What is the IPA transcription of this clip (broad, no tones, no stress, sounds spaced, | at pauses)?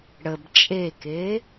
ɽ ə b t͡ʃʼ e k e